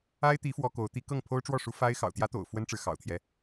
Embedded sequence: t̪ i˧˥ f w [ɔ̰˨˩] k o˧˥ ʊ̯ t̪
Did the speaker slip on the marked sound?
yes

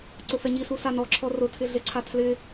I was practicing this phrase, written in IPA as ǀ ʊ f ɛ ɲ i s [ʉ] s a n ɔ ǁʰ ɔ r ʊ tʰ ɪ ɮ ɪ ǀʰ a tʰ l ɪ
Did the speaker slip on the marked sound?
yes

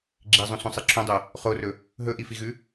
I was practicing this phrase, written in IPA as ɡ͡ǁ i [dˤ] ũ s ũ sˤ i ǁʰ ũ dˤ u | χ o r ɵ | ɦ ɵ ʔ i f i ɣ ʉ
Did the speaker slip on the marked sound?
yes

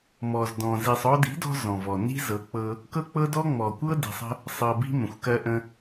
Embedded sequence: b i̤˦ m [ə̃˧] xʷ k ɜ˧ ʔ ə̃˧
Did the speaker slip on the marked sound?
yes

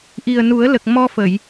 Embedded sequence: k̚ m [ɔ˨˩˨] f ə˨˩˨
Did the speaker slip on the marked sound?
yes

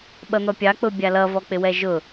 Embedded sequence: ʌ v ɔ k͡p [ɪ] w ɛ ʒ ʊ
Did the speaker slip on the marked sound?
no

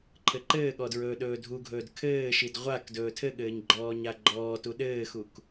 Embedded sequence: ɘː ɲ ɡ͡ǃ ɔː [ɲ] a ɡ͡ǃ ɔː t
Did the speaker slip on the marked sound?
no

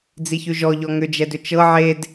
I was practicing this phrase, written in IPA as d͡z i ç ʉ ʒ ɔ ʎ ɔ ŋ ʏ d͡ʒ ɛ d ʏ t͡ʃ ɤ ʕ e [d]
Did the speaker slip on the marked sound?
no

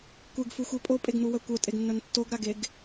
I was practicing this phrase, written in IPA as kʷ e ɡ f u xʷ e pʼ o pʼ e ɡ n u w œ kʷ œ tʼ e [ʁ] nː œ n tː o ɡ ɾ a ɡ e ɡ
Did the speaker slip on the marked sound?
yes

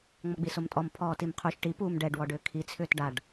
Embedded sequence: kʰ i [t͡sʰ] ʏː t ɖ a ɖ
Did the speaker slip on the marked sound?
no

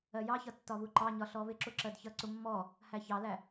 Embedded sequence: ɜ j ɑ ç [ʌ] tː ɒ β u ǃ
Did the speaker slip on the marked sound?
no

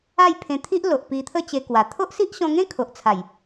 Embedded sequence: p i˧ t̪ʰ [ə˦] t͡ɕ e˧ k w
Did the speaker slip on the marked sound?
no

